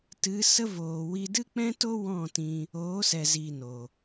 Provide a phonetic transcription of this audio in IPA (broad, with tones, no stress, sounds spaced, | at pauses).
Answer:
t ɨ˨˦ s ə˦ v oː˨ w i˧ d ɨ˦ k͡p ɛ̃˦ t o˦ w ɔ̃˦˨ t ĩ˧ | oː˨˦ s ɛ˨ z iː˨ n o˨